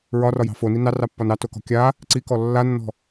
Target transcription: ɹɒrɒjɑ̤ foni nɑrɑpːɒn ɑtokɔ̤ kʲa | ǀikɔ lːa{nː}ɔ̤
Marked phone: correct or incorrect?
correct